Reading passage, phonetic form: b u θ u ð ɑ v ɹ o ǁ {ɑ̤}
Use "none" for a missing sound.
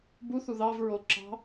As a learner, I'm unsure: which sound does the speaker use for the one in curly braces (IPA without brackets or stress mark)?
ɑ̤